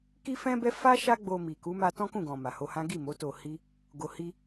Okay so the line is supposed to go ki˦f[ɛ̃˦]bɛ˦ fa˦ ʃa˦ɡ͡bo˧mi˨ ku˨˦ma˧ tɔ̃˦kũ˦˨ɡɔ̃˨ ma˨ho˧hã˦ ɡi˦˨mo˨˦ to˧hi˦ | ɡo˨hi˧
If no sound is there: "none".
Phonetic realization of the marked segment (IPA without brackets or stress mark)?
ɛ̃˦